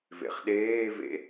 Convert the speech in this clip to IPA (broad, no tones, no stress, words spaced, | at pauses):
vḛχɗeːvḛ